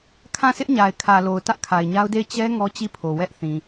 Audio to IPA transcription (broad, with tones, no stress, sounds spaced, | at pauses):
kʰ ã˦˨ sʰ ɪ˦ ʔ ɲ a˨ ɪ̯ kʰ ä˨ l o˨ ʊ̯ t ä˦ ʔ kʰ a˨ ɪ̯ ɲ a˦ ʊ̯ d e˦˨ ɪ̯ t͡ɕ ɛ˦ ŋ ɔ˦ t͡ɕ i˦˨ pʰ o˨ w ɛ˦ ʔ θ ĩ˨